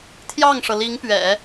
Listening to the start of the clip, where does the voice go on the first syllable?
falling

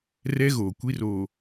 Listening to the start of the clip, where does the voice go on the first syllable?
high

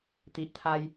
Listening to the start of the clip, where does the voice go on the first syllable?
low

